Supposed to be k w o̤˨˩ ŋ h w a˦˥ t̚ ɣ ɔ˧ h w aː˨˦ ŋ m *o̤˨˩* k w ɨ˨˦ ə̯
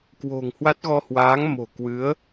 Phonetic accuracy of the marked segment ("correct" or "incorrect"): correct